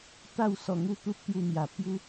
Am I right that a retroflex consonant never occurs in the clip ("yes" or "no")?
yes